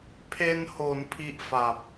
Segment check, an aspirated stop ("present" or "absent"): present